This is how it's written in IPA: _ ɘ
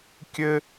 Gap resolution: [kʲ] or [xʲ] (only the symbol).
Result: kʲ